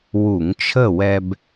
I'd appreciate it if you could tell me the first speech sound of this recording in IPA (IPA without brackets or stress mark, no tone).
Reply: w